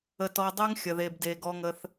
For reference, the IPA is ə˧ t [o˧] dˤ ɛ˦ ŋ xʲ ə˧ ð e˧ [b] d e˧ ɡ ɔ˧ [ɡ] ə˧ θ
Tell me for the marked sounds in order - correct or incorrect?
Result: incorrect: ɔ˧, correct, incorrect: ŋ

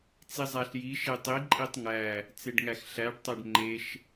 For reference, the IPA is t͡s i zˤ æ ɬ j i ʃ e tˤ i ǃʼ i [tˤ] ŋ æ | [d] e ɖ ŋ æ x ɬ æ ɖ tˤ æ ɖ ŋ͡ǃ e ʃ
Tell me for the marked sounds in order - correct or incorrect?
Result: correct, incorrect: t͡s

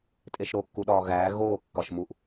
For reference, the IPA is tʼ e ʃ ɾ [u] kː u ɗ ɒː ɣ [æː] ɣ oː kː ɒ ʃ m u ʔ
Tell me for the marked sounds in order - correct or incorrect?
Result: incorrect: o, correct

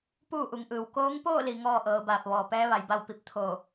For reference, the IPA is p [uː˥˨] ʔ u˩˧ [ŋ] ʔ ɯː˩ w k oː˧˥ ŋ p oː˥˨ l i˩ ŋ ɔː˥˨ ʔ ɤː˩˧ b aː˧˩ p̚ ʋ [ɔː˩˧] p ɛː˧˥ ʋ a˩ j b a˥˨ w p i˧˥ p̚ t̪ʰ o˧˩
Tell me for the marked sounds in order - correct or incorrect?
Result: correct, correct, incorrect: ɔː˩

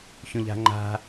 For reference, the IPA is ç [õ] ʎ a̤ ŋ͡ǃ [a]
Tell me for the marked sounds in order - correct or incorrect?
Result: correct, incorrect: a̤

